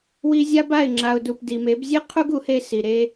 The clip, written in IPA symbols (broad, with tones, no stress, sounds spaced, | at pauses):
w i˧ zʲ a˦ b a˦˨ ɪ̯ ŋ͡ǁ a˨ ʊ̯ d u˨ p d i˨ m e˨˦ b zʲ e˦ qʰ u˦ ɡ u˨˦ h e˦ s i˨ ɾ e˦